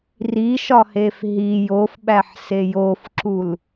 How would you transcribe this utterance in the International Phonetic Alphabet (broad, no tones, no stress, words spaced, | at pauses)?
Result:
riʃɒhef ɦi jofɓæħse jofǁul